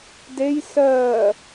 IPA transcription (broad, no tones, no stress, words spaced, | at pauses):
dej sɜː